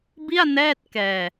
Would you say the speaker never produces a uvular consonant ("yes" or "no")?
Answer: yes